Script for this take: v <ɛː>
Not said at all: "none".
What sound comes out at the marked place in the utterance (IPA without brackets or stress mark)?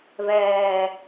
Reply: ɛː